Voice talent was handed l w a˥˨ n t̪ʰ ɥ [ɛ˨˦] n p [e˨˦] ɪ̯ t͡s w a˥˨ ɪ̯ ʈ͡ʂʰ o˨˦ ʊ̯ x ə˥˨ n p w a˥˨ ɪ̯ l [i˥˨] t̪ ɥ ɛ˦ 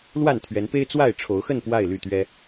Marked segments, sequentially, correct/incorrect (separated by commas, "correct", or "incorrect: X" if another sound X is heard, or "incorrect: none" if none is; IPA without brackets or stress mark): correct, incorrect: e˦, incorrect: y˥˨